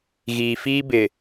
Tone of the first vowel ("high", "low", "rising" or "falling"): low